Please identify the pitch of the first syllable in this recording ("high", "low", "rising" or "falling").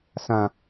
low